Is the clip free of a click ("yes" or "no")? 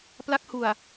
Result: yes